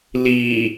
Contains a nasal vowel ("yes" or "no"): no